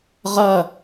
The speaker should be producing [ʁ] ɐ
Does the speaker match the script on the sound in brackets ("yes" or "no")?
yes